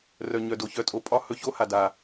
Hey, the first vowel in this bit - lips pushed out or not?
yes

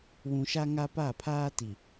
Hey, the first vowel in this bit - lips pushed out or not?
yes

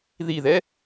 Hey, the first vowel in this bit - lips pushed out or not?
no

